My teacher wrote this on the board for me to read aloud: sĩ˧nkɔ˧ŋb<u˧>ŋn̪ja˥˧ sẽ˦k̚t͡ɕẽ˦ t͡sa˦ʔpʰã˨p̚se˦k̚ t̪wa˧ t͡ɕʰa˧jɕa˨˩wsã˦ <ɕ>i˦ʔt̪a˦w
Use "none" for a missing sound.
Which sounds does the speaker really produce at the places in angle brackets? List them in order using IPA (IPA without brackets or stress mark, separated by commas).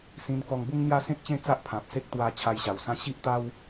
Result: u˦, ɕ